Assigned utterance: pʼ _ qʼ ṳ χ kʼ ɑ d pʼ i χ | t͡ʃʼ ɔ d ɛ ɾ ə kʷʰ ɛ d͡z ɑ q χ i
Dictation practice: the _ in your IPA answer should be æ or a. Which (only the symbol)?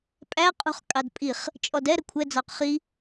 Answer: æ